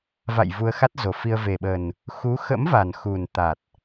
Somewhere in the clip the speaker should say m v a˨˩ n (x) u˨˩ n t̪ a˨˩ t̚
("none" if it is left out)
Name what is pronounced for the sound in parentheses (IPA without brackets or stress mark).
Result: x